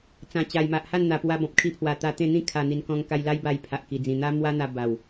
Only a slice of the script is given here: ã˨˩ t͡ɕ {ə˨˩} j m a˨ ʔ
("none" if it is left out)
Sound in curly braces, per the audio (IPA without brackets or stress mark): a˨˩